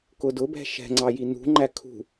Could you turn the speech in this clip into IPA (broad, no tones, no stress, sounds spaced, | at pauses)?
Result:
k ʊ d ʊ b ɛ̤ ʃ ɛ̤ ŋ͡ǀ ɑ j i n ṳ ŋ͡ǃ æ kʰ ṳ